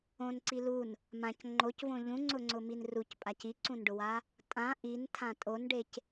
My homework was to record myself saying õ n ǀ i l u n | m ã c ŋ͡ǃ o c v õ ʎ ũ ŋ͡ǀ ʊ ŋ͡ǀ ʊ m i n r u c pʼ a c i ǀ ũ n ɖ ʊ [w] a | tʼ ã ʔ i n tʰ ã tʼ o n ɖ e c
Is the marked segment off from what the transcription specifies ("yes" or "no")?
no